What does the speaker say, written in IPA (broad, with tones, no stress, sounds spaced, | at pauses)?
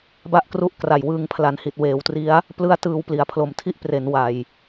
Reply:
b a˦˥ ʔ k r u˦˥ ʔ k r a˨˩ j w ɯː˧ ŋ pʰ l a˩˦ n h i˨˩ t̚ w eː˩˦ w t r i˦˥ a̯ | p l ɯ˦˥ a̯ t ɯː˧ w p l i˨˩ a̯ pʰ l o˨˩ m tʰ i˥˩ ʔ p r e˩˦ n w a˨˩ j